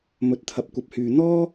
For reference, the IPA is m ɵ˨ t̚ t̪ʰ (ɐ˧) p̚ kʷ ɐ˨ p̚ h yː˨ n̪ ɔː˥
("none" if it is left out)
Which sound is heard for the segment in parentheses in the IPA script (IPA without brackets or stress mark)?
ɐ˨